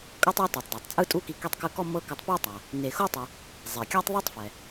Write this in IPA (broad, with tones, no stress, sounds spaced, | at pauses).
kʼ ɤ˦ tˤ ɛ˦ t ɯ˩ tˤ d ɤ˩ tˤ t͡sʼ ɯ˦ tʼ u˦ k i˨ k i˦ tˤ k ɯ˦ k ɔ˥ m ɤ˦ k ɯ˨ tˤ p e˦ tˤ a˩ | n e˨ x o˥ tˤ i˨ | zˤ e˩ kʲ a˦ tˤ ðˤ u˦ tˤ f ɛ˩